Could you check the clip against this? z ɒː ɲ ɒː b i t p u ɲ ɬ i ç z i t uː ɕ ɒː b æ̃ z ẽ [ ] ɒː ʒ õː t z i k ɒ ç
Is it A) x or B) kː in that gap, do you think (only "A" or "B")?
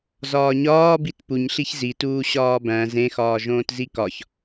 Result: A